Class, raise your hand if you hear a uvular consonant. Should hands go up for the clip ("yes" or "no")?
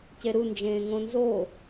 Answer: no